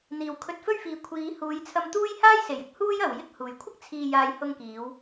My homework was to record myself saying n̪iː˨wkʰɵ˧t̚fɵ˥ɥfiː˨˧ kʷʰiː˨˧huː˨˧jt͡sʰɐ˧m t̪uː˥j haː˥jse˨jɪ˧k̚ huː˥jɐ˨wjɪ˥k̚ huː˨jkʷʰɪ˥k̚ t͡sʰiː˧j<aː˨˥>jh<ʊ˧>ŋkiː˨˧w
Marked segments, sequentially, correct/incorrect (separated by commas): incorrect, correct